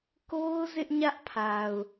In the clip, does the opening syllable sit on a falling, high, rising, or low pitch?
high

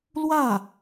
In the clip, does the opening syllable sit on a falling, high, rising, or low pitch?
falling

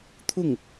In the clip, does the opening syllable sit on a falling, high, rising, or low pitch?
falling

